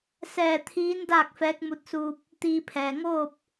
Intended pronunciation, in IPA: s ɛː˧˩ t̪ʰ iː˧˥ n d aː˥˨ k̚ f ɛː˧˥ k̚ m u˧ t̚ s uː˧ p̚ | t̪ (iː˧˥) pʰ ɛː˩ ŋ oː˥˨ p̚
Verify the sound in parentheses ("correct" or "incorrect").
incorrect